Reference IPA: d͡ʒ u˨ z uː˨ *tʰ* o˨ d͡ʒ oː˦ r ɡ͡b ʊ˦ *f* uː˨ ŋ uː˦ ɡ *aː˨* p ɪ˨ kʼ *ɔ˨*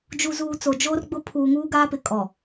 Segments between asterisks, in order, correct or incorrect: incorrect, incorrect, incorrect, correct

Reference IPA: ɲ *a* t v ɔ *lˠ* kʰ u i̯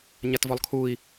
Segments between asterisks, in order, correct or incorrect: correct, correct

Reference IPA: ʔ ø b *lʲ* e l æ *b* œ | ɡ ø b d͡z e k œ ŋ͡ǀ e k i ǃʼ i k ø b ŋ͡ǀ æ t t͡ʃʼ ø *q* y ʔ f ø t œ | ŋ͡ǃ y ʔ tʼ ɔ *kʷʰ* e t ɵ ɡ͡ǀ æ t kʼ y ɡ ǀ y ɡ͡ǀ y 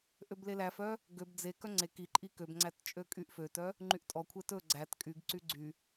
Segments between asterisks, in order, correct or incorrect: incorrect, incorrect, incorrect, correct

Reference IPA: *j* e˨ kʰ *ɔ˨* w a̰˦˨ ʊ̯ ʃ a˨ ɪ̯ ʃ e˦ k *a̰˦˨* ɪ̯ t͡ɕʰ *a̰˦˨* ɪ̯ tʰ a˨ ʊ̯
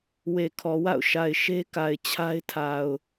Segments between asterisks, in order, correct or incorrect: incorrect, correct, incorrect, incorrect

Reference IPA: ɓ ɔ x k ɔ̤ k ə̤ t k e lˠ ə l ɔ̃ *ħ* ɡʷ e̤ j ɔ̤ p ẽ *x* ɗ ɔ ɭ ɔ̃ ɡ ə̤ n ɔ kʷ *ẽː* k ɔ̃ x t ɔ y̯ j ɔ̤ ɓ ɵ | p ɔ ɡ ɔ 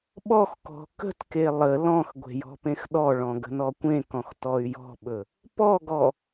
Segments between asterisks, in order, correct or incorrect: incorrect, correct, incorrect

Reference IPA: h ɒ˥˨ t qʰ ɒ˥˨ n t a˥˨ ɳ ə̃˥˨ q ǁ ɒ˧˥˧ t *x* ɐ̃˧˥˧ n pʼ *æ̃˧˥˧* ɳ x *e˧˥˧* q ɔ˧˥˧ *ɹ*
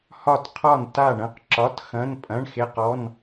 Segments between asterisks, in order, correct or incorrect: correct, incorrect, correct, incorrect

